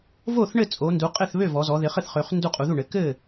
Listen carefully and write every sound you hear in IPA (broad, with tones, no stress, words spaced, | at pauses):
vo˥˩θɳɘ˥˩ t͡sʼo˩˧ndu˩˧qʼɘ˥˩θβø˥˩ vɔ˩˧zɔ˩˧ ðɪ˩˧χɘ˥˩θχø˩˧χ ndu˥˩qʼu˩˧ðu˥˩ɳɘ˩˧ kɘ˥˩